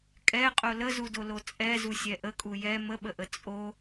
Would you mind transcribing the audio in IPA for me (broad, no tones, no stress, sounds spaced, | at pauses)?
kʼ ɛ qʼ o l ə z u d o l o t͡sʼ ɛ z u sʲ ɛ ʔ ə kʼ u j ɛ m ə ɓ ə ʔ ə t͡sʼ o